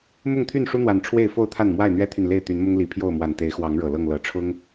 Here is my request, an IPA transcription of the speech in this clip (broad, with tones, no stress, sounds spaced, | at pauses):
m ʊ˥˨ ŋ t̪ʰ y˥˨ n ʂ u˦ n̪ w a˨˩ n ʈ͡ʂʰ w e˥˨ ɪ̯ f o˥˨ ʊ̯ t̪ʰ a˥˨ n m w a˥˨ ɪ̯ n̪ ɥ ɛ˦ t̪ʰ y˨ n l e˥˨ ɪ̯ t̪ y˨˦ n m ʊ˦ ŋ l i˨˩ pʰ j o˥˨ ʊ̯ m w a˨˩ n t̪ e˨˦ ɪ̯ x w ɑ˨˦ ŋ ɻ ɤ˨˩ l ɤ˥˨ ŋ l ɤ˨˦ ʈ͡ʂʰ ʊ˦ ŋ